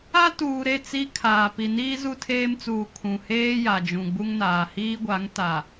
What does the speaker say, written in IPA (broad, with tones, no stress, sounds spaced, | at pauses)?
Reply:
a˦ t uː˨ ɾ e˦˨ t͡s i˦ kʰ aː˨ p i˨ n iː˦ z u˦ tʰ eː˦ m t͡s uː˨ kʰ ũ˨ h eː˦ j a˨ d͡ʒ ũ˨ ɡ͡b u˦ ŋ n aː˨ h iː˦ ɡʷ a˨˦ ŋ t a˨